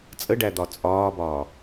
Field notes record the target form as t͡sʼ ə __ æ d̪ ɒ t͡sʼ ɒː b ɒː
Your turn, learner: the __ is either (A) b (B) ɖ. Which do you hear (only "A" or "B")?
B